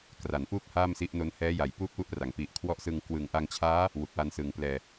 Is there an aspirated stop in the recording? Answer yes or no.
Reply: yes